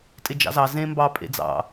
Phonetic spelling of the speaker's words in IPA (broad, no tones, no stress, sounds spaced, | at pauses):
tʼ ɪ d͡ʒ ɑ̰ z ɑ z ẽ m b ɑ pʼ ḛ d͡z ɑ̰